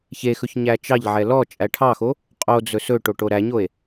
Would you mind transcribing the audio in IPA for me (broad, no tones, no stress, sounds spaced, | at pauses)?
ç e x ɵ ç ɲ æ t͡ʃ ɑ ʎ ʕ ɛ l ɔ t͡ʃʼ æ ʈʰ ɑ x o | qʼ o d͡z ɵ s ɵ ʈ o ʈ o ɾ æ ɲ o e̯